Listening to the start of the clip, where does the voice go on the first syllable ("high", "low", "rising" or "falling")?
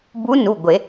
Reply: rising